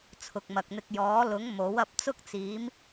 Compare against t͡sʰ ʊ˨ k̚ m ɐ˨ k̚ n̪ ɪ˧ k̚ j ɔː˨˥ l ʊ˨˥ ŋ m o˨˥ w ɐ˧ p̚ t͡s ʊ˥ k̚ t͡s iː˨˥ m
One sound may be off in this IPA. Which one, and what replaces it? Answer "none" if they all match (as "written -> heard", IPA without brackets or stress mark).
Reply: none